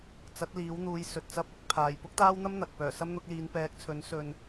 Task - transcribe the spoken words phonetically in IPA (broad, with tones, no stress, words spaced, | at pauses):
t͡sɐ˨˥t̚ liː˨˥wn̪uː˨˧jsɵ˨t̚ t͡sɐ˥p̚ɪ˥k̚ pʰaː˨j pʊ˥k̚t̪aː˥wn̪ɐ˥m n̪ɐ˨k̚ pœː˨˩sɐ˥mn̪ʊ˨˥k̚liː˨˧n pɛː˨˥k̚t͡sʰɵ˨˥n sɵ˧n